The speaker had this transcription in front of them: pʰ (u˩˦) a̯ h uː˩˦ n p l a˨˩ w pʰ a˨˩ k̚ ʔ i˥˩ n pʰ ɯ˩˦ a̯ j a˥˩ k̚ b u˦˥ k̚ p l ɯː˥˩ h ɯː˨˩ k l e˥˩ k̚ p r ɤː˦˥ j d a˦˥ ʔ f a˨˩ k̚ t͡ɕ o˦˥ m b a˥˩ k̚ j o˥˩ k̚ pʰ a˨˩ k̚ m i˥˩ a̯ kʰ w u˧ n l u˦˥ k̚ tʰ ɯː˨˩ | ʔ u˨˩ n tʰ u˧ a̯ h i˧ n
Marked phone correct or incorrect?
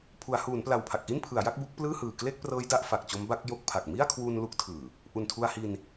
correct